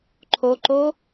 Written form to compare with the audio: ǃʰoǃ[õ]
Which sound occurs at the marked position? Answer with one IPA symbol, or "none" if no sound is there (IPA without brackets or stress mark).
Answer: o